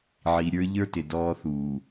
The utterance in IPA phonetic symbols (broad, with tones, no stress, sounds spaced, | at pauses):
ʕ i˨ ɾʲ ə˞˦ ʎ ə˞˦ t ɪ˨ d ɔː˦ θ uː˨